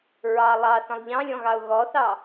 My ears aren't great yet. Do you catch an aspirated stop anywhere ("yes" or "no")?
no